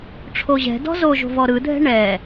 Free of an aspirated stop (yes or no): no